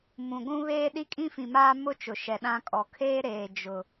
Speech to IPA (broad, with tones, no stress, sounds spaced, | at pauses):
m ũ˨ ɡʷ ũ˦ β eː˦ ɗ i˦ kʼ ĩ˦ f ĩ˨ m aː˦ m ʊ˦ t͡ʃ ʊ˨ ʃ ɛ˨ ɗ ã˦ kʼ ɔ˨ kʰ eː˦ ɾ eː˨ d͡ʒ ʊ˨